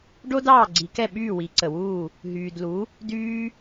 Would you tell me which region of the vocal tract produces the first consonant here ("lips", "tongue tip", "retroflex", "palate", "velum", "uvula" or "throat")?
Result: retroflex